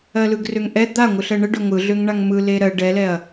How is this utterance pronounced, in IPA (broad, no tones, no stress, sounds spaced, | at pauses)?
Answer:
ɜ l ɯ ɡ r ø ŋ ʔ ɛ d̪ a ŋʷ ɯ ɬ ɜ ɳ ə ɖ ɵ ɐ̯ ŋʷ ɯ ɮ ø ŋ ɳ a ŋ m ɯ l e ɾ ɜ ɖ ɛ l ɛ ɐ̯